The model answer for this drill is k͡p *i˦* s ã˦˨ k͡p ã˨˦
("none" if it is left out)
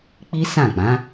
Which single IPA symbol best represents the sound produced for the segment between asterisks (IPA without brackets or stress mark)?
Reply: i˦